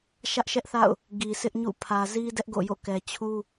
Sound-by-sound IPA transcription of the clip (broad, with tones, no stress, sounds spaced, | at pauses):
ʃ ä˦ ʔ ʃ ɛ˦ ʔ θ a̰˦˨ ʊ̯ | ɡ i˨ sʰ ɪ˦ ʔ ɲ ṵ˦˨ pʰ ä˨ z i˦ d ɛ˦ ʔ ɡ o̰˦˨ j o̰˦˨ k ɛ˨ t͡ɕʰ u˦